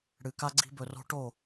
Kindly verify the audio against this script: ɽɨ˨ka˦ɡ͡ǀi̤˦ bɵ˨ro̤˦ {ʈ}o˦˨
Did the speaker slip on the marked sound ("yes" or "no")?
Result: no